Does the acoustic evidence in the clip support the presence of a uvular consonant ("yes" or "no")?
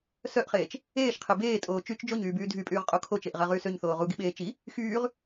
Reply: yes